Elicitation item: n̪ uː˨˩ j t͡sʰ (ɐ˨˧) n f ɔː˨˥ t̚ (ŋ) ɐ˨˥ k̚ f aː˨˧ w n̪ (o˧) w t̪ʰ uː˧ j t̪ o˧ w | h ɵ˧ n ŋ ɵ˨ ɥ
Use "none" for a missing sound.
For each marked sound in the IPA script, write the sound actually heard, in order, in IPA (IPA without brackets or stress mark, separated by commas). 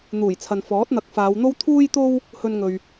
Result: ɐ˨, n̪, o˥